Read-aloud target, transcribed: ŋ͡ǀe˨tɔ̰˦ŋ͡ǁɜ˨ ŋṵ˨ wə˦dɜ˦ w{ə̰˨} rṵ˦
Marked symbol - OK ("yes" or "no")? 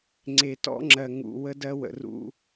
yes